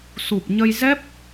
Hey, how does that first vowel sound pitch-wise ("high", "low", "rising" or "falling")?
low